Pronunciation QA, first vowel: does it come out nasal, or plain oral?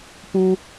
nasal